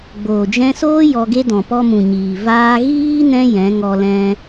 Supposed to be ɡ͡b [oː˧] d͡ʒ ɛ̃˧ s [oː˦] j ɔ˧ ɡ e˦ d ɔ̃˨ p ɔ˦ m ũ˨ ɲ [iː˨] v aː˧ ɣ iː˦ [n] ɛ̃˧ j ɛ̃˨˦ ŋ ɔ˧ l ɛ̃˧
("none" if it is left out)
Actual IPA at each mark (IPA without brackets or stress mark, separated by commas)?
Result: oː˨, oː˦, iː˨, n